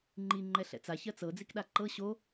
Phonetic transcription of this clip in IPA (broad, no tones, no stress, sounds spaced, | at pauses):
ŋ͡ǃ i ŋ͡ǃ ɛ ɬ ɛ̰ t͡s a ç ɜ t͡s ɤ d͡z i k ɗ a ǃ ɤ ɕ o